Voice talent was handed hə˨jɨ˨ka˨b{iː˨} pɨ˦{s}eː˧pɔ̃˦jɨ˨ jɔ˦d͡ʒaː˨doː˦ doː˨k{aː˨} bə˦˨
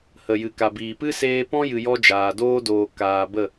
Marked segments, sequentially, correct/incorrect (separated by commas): correct, correct, correct